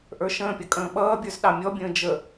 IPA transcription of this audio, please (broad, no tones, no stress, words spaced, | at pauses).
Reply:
ʔə˞ʃə̃ːpʲʌ kʼə̃ːɓʌːbʲə˞z ɗɑmʲɔbʲə̃ː d͡ʒə